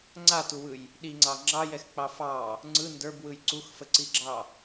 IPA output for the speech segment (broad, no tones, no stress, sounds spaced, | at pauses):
ŋ͡ǀ a t u w ɯ j | ɗ i ŋ͡ǀ ɑ ŋ͡ǁ ɑ j ɛ x k͡p ɑ f ɑ | ŋ͡ǀ ɯ n d ə˞ b w ɯ j ǀ u x f ə ǀ i ɡ͡ǁ ɑ